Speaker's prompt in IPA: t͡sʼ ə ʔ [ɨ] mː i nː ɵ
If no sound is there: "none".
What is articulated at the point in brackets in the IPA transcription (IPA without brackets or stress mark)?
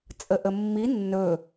ə